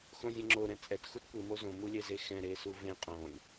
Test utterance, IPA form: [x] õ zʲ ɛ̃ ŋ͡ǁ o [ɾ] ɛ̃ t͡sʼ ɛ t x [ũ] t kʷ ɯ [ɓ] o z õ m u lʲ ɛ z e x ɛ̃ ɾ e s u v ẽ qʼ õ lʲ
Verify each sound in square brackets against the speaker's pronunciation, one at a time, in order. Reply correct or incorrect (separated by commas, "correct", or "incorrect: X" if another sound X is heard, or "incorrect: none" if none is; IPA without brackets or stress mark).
correct, correct, incorrect: u, incorrect: m